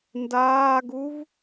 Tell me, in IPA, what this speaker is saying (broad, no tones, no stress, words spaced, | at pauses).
ndaːɡuv